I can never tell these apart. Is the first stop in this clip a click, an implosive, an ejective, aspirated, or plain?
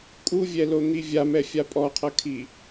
ejective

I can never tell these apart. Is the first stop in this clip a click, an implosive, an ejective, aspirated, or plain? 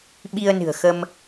implosive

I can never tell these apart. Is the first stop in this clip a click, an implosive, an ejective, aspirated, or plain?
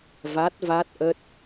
plain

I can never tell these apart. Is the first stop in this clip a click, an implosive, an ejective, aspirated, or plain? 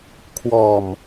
aspirated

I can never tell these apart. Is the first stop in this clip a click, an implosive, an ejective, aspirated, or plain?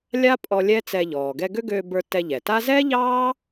ejective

